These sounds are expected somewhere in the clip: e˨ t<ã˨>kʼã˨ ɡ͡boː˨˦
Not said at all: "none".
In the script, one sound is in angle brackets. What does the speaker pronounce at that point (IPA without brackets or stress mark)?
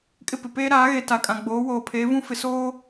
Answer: a˨